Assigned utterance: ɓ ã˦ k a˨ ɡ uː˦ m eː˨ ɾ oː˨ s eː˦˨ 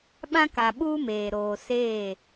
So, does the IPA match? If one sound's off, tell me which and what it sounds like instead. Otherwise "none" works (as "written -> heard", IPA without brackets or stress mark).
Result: ɡ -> ɓ